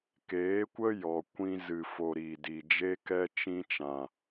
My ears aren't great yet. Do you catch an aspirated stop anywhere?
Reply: no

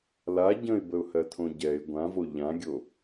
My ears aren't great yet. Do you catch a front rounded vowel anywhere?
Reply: no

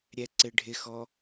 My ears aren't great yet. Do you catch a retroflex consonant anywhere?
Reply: yes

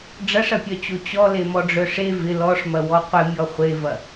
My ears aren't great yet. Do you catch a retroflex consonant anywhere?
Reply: yes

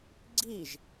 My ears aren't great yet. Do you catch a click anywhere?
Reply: yes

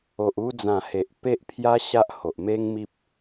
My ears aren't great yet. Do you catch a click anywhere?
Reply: no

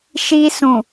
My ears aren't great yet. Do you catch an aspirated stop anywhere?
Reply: no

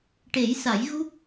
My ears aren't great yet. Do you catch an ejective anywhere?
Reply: no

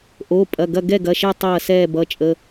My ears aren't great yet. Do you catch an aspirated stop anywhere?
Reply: no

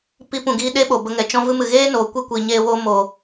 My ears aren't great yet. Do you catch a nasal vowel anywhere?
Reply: yes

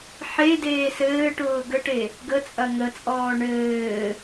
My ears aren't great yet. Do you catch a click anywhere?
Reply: no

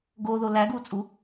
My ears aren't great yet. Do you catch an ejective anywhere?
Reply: yes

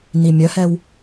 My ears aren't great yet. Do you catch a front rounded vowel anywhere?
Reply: yes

